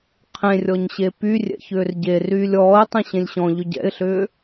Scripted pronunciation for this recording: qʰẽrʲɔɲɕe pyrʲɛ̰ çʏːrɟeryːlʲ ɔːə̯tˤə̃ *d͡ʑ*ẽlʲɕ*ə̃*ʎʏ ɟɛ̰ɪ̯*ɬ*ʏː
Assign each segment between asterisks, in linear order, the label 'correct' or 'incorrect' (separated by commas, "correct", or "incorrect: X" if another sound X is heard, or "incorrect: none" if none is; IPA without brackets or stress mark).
incorrect: ɕ, incorrect: ɔ̃, correct